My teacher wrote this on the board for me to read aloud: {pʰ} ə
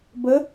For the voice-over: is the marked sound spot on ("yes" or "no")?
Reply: no